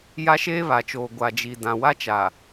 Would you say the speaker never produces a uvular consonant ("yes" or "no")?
yes